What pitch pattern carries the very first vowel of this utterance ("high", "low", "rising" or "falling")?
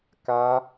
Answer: high